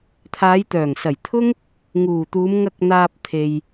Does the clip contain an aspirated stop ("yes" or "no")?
yes